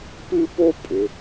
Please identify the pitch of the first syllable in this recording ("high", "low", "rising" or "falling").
high